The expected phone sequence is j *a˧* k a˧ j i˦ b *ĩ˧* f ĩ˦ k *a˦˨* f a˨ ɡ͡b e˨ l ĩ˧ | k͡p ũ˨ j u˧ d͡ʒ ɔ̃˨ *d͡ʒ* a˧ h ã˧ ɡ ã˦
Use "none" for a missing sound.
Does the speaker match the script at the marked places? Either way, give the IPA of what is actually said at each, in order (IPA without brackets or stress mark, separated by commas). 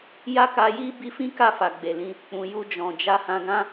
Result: a˦, i˧, a˦˨, d͡ʒ